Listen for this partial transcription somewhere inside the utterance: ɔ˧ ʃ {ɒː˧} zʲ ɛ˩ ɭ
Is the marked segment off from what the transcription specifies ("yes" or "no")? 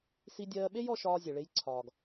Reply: no